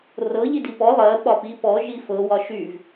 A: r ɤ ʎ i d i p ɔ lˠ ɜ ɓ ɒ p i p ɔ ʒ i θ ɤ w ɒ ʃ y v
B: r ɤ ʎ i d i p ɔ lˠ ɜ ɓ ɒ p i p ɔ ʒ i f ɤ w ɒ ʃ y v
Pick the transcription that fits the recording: B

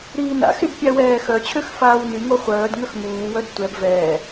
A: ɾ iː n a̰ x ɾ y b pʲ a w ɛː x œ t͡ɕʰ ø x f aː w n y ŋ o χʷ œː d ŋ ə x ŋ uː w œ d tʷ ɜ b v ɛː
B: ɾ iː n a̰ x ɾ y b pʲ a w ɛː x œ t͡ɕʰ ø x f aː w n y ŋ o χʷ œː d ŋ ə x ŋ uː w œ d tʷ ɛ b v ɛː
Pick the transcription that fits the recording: B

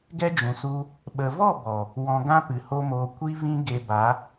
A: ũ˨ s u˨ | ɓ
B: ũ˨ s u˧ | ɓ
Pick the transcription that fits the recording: B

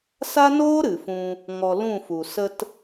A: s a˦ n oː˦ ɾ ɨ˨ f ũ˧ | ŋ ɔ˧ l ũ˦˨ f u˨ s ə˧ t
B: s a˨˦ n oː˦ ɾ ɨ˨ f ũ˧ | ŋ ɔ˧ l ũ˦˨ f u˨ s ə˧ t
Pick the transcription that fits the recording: A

